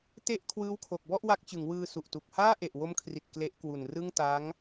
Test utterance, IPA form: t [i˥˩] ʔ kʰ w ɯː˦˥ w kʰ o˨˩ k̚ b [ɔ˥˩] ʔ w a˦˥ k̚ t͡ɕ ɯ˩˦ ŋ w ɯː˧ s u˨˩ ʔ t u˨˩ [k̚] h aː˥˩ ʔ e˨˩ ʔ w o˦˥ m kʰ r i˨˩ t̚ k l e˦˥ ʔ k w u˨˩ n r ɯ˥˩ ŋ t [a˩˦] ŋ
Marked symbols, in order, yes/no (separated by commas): no, yes, yes, no